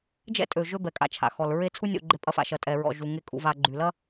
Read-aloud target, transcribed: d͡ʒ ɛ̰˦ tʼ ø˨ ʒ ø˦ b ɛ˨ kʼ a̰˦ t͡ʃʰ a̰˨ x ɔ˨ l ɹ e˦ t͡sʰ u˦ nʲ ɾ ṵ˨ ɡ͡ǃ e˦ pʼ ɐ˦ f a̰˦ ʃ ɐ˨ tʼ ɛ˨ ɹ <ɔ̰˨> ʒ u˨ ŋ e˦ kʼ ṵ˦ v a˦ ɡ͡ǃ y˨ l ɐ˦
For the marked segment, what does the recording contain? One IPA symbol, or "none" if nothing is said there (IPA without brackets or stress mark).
ɔ̰˨